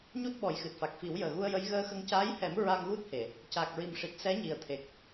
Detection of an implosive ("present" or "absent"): present